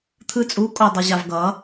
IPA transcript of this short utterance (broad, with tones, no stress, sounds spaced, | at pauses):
t̪ʰ ɯ˧ t͡sʼ u˨˥ kʼ o˧ dˤ ʌ˧ ʑ a˧ v ɡ ʌ˨˥